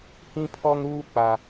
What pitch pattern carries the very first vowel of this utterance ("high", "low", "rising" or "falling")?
high